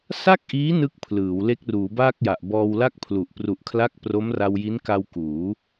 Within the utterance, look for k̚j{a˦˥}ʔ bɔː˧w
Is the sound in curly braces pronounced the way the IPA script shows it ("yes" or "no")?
no